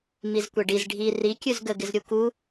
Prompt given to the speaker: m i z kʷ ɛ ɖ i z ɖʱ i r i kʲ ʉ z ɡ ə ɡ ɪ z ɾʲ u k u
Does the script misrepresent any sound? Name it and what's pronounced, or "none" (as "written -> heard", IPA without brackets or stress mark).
none